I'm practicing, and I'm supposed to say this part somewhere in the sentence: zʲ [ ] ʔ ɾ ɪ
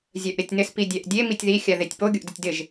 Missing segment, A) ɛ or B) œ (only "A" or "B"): B